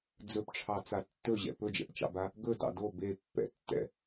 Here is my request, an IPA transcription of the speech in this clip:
d͡z ɵ p ʈ͡ʂʰ ɑ t͡s a tː ɵ ʑ ɛ̰ p ɵ d͡ʒ ɛ̰ p t͡ʃ ɑ̰ b a | ɡ ɵ d ɑ̰ d o b e pː ɛ̰ tː ɛ̰

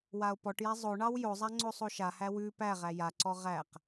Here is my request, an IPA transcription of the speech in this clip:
w a o̯ p ɔ ʈ j æ zˤ o ɳ ɑ w j o zˤ a ŋ͡ǀ o sˤ o ʃ a h æ w ʉ p æ ʁ æ j a ǀ ɔ ʁ æ q

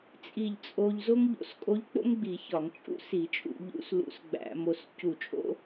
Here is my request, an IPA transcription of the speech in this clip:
t͡sʼ i˧˩ ʎ t͡sʼ o˧ ʎ z o˥ ŋ ʎ o̰˧˩˧ s kʼ o˧˥ ʎ k͡p o̰˥ ŋ ɡ͡b i˧˩˧ ç ɒ˧˩˧ ŋ t͡ʃʼ ṵ˥ s i˧˩˧ t͡ʃʼ ṵ˧˩˧ ʎ ṵ˧˥ s l ṵ˧˥ s ɡ͡b æ̰˧˩˧ m o˧ s c u˧˩ t͡ʃʼ o̰˥

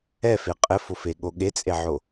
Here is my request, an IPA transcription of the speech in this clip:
ɛ f e qʼ ɘ f o f e ɠ o ɠ e t͡sʼ e ʕ o

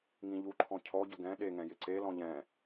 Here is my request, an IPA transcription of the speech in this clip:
ŋ ĩ ʎ u ǃʰ ɔ̃ cʰ ɔ ɟ ʊ ɡ ɛ̃ ɗ e ŋ ɛ̃ j ɪ ǀ e l ɔ̃ ʎ ɛ̃

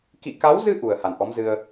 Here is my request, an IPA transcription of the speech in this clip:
k ḭ˧˨ k a˨˦ w z ɨ˧ ʔ u˨˩ ə̯ h a˨˩ n ʔ ɔ˨˦ m z ɨ˧ ə̯

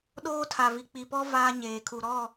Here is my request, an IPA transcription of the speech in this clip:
ɗ oː˦ tʰ a˨ v i˨ k͡p i˨ p ɔ˦ v aː˦ ɲ eː˨ kʰ u˨ ɾ ɔ˦˨

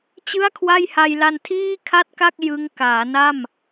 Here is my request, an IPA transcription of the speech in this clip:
t͡ɕ ɯ˥˩ a̯ kʰ w a˥˩ j h a˧ j l a˧ n tʰ iː˥˩ kʰ a˥˩ t̚ k a˥˩ k̚ j ɯ˦˥ ŋ k aː˩˦ n a˥˩ m

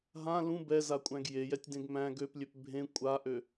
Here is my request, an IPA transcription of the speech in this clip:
ɦ ã l ũ b ɛ z a kʷʼ æ̃ ɡ j e j ɛ tʲ d ẽ ɡ m æ̃ ɡ ø p lʲ ø p bʱ ẽ kʷʼ a ʔ ø

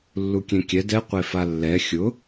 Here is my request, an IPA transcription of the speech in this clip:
lː u kʲ ẽ kʲ ɛ d ɛ qʷ e f a lː ɛ xʲ ʊ

